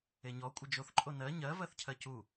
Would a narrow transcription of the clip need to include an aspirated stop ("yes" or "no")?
yes